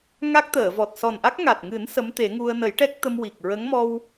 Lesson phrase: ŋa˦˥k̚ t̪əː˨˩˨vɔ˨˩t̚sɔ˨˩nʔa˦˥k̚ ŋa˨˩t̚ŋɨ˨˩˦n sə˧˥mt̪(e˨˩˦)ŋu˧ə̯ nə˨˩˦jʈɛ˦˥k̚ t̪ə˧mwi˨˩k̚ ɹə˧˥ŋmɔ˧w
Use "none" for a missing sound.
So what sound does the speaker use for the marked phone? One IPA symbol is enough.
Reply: e˨˩˦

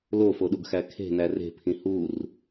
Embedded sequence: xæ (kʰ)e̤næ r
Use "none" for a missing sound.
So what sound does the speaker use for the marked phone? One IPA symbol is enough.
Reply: kʰ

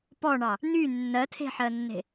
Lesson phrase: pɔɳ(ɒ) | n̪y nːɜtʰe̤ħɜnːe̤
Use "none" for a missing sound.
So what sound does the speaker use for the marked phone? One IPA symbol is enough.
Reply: ɑ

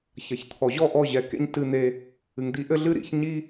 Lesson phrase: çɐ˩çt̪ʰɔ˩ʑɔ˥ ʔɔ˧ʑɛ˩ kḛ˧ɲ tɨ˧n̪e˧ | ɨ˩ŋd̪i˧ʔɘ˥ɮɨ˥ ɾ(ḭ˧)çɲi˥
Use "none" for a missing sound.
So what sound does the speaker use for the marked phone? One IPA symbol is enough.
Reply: ḭ˧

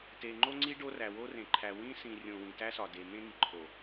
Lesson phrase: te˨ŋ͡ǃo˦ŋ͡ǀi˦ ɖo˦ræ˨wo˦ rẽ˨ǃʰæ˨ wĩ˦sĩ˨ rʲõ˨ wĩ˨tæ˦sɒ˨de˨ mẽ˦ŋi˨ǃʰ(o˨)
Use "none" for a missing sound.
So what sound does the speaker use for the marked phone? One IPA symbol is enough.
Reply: o˨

